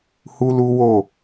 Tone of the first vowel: high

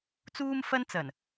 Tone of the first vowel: high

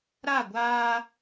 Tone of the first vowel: falling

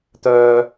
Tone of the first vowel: high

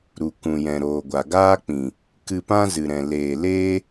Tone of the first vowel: low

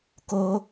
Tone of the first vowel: high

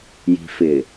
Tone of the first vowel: low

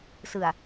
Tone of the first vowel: low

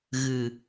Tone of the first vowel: low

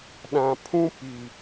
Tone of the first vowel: low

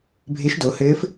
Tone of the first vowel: rising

